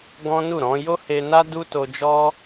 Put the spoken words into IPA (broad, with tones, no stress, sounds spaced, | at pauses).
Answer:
ɡ ɔ̃˦ n u˦˨ ɾ ɔ̃˨˦ j o˦ h e˧ n a˦ d u˦ t o˧ d͡ʒ ɔ˦